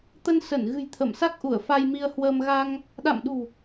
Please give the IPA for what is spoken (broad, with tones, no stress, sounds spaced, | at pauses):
t̪ ə˧ n s ə˧˩ n ɣ ɨ̤˨˩ j t̪ʰ ə˧˩ m s a˦˥ k̚ ʔ u˧˩ ə̯ f a˧ j m i˧ ə̯ h w əː˧ m ɣ a˧ ŋ | ɗ a̰˧˨ m ɗ ṳ˨˩